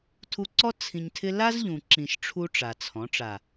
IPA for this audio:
tʰu˧ǀɔ˦ t͡sʰĩ˧ɲtʰɪ˦ la˦zʎũ˨ǁĩ˨ʃ ʈ͡ʂʰu˦ʈ͡ʂa˨t͡sʰɔ̃˨˦ ʈ͡ʂa˨

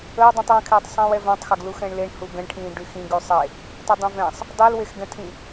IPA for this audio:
əw dˤũtˤwə̃kʰeːtˤ sˤĩːwɛvæ̃tˤxæɡ luxɛ̃ɳleɳ huɡə̃ɳʈʰĩː ɖyxĩɡ ysˤe | tˤydˤĩvɛ̃sˤ | dˤylwexɡɛ̃tʰĩ

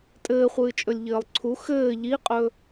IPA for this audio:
tʼɘːχʷɨːt͡ʃʼɵlʲʎɘːlˠ ǀʰu xɘː ʎiqʼɵ

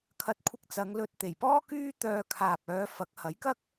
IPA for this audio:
kʰɐ˧t̚kʷʰɪ˧k̚ t͡sɐ˨˧ŋlɵ˧t̚ t̪e˨˩jpɔː˥kyː˥ t̪œː˧ kʰaː˨p̚œː˨˧ fɐ˨˥k̚ hɐ˨˥jkɐ˥k̚

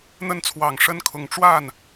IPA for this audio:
n̪ə˥˩nt͡sʰwɑ˨˩ŋ ʂə˥nkʰʊ˨˩ŋ ʈ͡ʂwa˥˩n

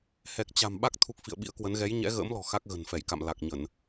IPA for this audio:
hɛ˨˩k̚t͡ɕa̤˨˩m ɓa˦˥k̚ t̪ʰu˦˥k̚ fḭ˧˨ə̯ɓḭ˧˥ə̯kwə˨˦n ɣɛ˨˦j ɲɛ̰˧˥ɣə̰ː˧˥mlɔ̤˨˩ xa˦˥k̚ɣə̤˨˩nfɛ˧˩jka̰˧˨m la˨˩k̚ɲə˧˩˨n

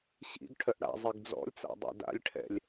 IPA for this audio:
ɕḭɡ ʈʰœʔɽa̰zˤiɡ d͡zɔ̰lʲt͡sa̰ dˤɛ̰da̰lʲʈʰɛ̰lʲ

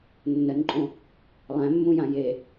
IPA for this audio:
nːənǃʼõ | lˠæ̃mːũjã je

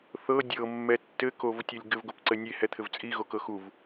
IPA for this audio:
θɤ dʲɤmːɛ tːɘkovtʲɤlʲ ɡɘvɡop ǀɘnʲehɛ t̪ʰɘvt͡sʼiɣokɤ xuv

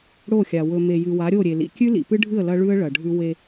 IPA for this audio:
ɽo˦˨xʲa˨ wɵ˨ me˨jɨ˨ wa˨˦ɾʲo˦˨ɾʲe˨lḭ˨ kʲʉ˦lḭ˨pɨ˦ɖʱɨ˦˨ə̯ lɐ˦ɭʉ˦ə̯ ɭɐ˨ɖʱʉ˦ we˦

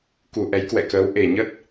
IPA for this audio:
ku˨˩ ʔɛ˨˦jkwɛ̰˧˨kəː˨˦w ʔe˨˩ ɲə˦˥t̚

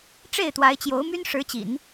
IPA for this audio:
ʈ͡ʂe˥˩ɪ̯t̪wa˧˥ɪ̯ t͡ɕjo˧˥ʊ̯my˥n ʂɻ̩˧˥t͡ɕḭ˨˩˦n

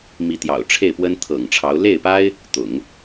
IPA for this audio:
mi˧˥t̪jɑ̰˨˩ʊ̯ʈ͡ʂʰe˥˩ɪ̯ pwə˥nt̪ʰɤ̰˨˩ŋʈ͡ʂʰɑ˧˥ʊ̯ le˥˩ɪ̯pa˥ɪ̯ | t̪ʊ̰˨˩˦ŋ

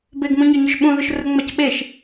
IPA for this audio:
beɡmũɲɔɲʊʒ ɓũðʊʃrʊŋ͡mac ɓeʃ

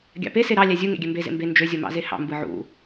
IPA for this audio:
ɡʲɑ̰pe seɾɑ lʲæzʲu ŋḛɡʲømbe zḛmbe nd͡ʒø zʲomɑ̰zehɑ̰ mbɯʕṵ

